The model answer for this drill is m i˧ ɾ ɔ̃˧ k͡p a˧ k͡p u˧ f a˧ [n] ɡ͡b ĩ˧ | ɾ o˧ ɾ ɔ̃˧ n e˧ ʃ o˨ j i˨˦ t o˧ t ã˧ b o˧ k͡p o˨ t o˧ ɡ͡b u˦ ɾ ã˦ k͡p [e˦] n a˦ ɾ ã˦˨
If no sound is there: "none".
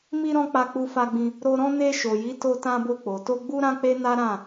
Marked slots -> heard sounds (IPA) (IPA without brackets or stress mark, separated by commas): none, e˦